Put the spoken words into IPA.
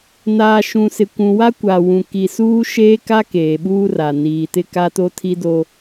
n aː˨ ʃ ũ˨ s ɪ˨ kʷ ũ˨ w a˦ kʷ a˨ w ũ˨ k i˨ s uː˦ ʃ eː˦ k a˦ k eː˨ ɓ uː˦ r a˨ n iː˨ t ɪ˦ k a˦ t o˦ tʰ i˦ d o˦

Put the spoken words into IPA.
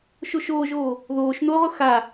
ʃ o ʃ oː ʒ oː | ð oː ʃ n o ʁ ʊ x a

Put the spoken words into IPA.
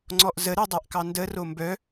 ŋ͡ǀ ɔ ʔ z ə ɾ e dˤ a ʔ k ɑ n d ə r o m b œ

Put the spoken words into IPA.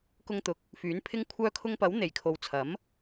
k ʊ˧ ŋ t̪ ʊ˨ k̚ | f yː˨˥ n pʰ ɪ˥ ŋ kʷʰ œː˧ kʰ ʊ˧ ŋ p ɐ˨˥ w n̪ e˨˩ j kʰ o˨˧ w t͡sʰ ɐ˨˥ m

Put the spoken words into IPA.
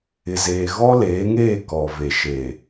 ɪ˨ z eː˨ ɣ ɔ˦ l eː˨˦ ŋ eː˦˨ k ɔ˨ v e˨ ʃ eː˨

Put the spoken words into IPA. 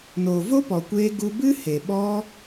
n oː˨ v o˦ p ɔ˨ kʷ eː˧ ɡ u˧ b ɨ˦ h e˨ ɓ ɔ˧

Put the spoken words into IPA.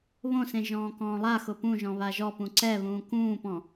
β õ s ẽ ʒ ɔ̃ː k ɔ̃ː lˠ a x ʊ p ũ ʒ ɔ̃ β a ʒ ɔ p ũ ǀ ɛ β ũː k ũː p ɔ̃

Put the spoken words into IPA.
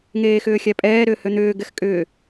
ŋ eː x ʏː xʲ æ pʼ ɛː ɾ ʏː h ø n̪ ʏː ɡ ɛ x kʼ ʏː

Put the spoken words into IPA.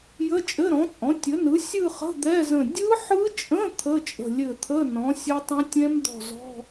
j ə˧˥˧ t͡ʃʼ ɘ˧˥˧ ɾ ɔ̃˩˥ t͡sʼ ɔ̃˩˥ tʲ ə˩˥ n ɯ˩˥ sʲ ɯ˥˧ χ ə̤˧˥˧ d̪ ɛ˧˥˧ z ə̃˧˩ dʲ ɯ˦˥ ħ ɯ˦˥ t͡ʃʼ ə̃˧˥˧ t̪ʰ ə˧˥˧ t͡ʃʼ ə̤˧˩ lʲ ɘ˧˩ t̪ʰ ə˧˥˧ n ɔ̃˩˥ sʲ ɘ˦˥ tˤ ə̃˦˥ tʲ ɛ̃˦˥ m d̪ ɔ̤˧˩ z ɔ̤˧˥˧

